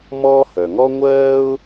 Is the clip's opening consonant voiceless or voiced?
voiced